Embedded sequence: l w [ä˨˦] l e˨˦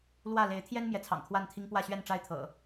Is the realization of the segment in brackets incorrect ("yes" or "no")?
yes